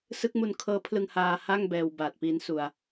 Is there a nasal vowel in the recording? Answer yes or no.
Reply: no